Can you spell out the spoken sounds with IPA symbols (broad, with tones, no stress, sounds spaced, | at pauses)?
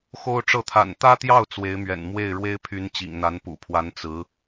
x o˥ ʊ̯ ʈ͡ʂ ɤ˥˩ t̪ʰ a̰˨˩ n t̪ ä˥ t̪ j ɑ˥˩ ʊ̯ t͡s w e˧˥ ɪ̯ m ɥ ɛ̰˨˩ n m w e˥˩ ɪ̯ ɻ w e˥ ɪ̯ pʰ y˧˥ n t͡ɕ ḭ˨˩ ŋ n̪ a˧˥ n p ṵ˨˩ pʰ w a˧˥ n t͡s ɹ̩˧˥